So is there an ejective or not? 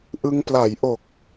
no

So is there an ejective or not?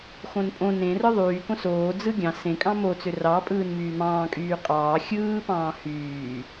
yes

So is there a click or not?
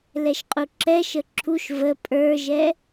yes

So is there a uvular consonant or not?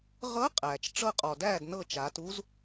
yes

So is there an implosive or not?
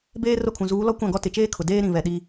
yes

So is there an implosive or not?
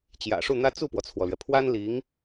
no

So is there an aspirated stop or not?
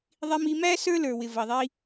no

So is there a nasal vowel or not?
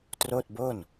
no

